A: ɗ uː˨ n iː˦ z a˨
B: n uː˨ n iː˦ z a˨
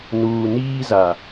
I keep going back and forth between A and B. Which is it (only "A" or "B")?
B